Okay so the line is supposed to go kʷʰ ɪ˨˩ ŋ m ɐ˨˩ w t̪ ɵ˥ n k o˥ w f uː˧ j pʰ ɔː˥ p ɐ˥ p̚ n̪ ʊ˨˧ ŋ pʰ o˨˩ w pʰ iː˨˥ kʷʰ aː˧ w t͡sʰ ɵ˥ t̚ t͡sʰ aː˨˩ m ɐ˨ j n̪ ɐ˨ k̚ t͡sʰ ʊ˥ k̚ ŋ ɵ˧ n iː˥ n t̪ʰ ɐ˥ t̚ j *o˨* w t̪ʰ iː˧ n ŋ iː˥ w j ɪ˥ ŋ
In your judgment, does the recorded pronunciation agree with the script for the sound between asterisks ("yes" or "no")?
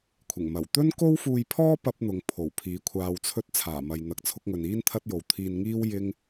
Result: yes